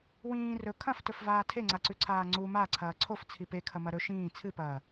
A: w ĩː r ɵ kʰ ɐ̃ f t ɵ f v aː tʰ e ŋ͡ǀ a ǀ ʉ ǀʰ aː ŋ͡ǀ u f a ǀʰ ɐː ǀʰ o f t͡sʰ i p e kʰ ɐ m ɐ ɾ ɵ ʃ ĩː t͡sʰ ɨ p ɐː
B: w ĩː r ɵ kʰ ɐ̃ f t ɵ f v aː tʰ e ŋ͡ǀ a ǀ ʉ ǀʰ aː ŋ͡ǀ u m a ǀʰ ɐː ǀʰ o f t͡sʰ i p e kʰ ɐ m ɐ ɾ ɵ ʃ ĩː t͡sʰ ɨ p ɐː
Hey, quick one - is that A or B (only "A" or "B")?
B